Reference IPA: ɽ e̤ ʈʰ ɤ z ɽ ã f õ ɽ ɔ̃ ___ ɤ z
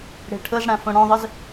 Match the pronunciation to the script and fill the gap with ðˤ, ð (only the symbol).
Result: ðˤ